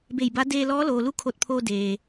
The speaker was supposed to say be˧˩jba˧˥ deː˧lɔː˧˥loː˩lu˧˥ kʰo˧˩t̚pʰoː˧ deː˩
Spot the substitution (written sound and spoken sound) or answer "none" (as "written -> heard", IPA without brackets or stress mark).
none